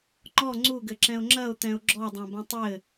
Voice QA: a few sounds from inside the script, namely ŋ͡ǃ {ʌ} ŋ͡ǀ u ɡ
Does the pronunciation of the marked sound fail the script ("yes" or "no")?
yes